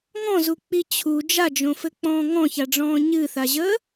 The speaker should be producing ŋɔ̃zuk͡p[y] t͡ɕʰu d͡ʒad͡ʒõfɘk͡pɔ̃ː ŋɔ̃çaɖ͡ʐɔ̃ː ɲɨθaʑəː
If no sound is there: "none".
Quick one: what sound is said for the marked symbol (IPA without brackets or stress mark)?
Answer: i